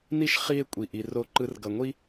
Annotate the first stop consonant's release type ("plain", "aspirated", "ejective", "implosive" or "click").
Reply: ejective